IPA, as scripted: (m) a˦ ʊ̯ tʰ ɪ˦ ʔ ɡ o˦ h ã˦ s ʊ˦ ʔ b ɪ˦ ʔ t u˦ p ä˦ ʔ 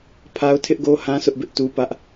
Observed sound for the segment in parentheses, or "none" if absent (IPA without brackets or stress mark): pʰ